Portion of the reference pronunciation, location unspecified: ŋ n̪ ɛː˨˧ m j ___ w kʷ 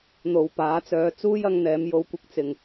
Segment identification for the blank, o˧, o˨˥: o˧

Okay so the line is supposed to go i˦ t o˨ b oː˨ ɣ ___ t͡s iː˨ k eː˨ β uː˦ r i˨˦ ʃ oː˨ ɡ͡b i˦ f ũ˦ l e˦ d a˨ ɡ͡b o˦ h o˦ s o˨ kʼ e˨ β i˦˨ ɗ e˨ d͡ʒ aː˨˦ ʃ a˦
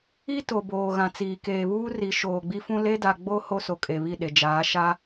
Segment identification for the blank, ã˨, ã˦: ã˨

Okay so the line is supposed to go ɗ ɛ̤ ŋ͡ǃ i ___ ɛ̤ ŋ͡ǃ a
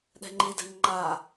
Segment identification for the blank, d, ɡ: d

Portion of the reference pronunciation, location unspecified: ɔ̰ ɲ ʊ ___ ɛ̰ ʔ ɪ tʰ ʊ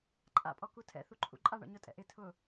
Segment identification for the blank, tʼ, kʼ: tʼ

